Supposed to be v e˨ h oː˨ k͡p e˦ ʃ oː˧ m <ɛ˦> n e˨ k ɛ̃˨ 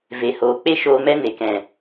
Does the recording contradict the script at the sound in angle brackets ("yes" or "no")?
no